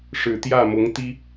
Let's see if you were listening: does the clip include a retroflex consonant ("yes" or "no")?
yes